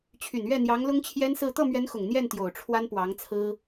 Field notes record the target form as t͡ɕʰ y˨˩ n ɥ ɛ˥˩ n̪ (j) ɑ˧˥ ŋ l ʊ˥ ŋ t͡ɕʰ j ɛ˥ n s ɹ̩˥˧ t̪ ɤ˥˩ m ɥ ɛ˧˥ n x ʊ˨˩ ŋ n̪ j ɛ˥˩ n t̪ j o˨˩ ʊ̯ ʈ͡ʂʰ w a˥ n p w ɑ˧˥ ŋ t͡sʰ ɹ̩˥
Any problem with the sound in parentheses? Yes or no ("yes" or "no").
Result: no